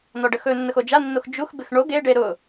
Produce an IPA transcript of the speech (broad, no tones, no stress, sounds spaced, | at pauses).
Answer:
n ɔ ɖ ə x ɵ nː ə x o d͡ʒ a nː o x d͡ʒ u x b ɪ x ɳ o ɡ e ɖ e ɾ ʊ